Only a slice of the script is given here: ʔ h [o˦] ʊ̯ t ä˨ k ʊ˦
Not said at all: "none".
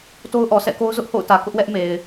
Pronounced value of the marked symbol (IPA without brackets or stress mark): o̰˦˨